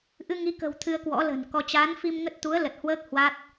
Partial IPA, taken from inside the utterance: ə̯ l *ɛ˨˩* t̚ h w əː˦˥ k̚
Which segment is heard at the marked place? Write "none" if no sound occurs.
ə˨˩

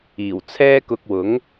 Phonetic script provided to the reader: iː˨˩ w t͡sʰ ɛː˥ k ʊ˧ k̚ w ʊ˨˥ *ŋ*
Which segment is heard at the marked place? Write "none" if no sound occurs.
ŋ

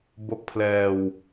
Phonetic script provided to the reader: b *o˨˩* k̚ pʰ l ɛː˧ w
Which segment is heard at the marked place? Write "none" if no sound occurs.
o˥˩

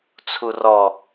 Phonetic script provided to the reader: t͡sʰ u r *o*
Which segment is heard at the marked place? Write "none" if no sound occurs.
ɔ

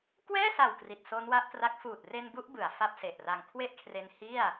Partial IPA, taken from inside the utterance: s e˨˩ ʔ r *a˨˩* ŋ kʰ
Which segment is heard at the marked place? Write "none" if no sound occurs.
a˧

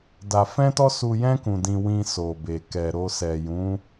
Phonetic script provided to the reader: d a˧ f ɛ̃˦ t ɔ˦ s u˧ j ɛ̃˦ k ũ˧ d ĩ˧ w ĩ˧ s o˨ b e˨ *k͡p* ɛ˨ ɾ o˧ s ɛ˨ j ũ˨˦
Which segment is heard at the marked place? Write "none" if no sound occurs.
k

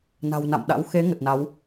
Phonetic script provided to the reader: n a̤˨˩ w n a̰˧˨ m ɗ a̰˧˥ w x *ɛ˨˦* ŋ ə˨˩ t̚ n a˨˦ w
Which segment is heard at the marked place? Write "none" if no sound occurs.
e˨˦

